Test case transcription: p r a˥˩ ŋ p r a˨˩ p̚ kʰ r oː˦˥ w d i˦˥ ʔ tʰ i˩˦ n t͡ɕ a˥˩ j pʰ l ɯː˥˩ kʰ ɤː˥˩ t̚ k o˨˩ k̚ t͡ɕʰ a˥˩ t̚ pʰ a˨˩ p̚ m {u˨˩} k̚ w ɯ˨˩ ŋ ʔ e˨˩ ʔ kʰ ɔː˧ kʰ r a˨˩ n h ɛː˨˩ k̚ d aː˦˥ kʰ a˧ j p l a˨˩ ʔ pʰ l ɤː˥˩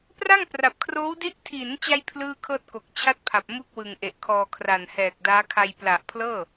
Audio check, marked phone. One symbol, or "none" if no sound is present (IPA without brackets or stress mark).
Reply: u˥˩